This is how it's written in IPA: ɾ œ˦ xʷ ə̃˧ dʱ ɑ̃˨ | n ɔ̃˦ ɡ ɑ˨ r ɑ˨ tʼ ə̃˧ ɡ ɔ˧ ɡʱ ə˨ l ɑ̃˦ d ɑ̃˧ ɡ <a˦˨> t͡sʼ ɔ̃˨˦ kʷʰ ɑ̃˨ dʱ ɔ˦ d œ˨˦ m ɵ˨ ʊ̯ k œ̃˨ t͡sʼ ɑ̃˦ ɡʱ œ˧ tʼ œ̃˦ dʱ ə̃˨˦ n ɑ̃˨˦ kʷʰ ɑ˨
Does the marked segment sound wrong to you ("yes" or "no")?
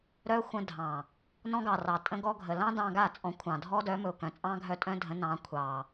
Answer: no